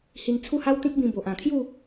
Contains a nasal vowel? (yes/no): yes